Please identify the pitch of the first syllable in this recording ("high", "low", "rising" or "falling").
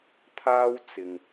high